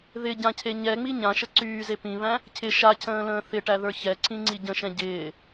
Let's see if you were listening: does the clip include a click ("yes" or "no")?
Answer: yes